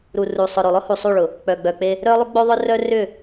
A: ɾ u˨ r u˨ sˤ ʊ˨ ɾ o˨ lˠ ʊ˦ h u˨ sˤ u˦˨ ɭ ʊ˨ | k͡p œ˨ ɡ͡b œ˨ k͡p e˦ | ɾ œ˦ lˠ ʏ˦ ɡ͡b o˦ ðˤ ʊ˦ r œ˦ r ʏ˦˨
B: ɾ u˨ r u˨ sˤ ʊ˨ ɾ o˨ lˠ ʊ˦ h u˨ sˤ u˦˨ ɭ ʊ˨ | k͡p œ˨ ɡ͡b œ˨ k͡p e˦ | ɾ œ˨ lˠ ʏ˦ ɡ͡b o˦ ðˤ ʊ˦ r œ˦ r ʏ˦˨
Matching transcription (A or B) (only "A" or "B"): A